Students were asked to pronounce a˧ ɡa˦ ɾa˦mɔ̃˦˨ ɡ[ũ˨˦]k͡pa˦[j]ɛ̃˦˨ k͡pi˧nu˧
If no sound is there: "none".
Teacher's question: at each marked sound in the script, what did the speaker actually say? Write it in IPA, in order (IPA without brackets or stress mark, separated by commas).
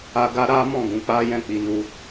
ũ˨˦, j